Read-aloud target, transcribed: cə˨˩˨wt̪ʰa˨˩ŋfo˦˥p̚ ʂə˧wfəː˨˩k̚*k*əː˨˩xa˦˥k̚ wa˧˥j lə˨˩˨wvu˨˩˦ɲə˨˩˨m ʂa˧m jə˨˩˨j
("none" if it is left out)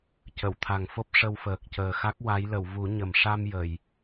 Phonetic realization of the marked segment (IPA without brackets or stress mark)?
c